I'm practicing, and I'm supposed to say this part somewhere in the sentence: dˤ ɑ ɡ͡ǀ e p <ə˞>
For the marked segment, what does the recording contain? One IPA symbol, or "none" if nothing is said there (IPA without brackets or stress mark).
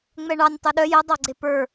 ə˞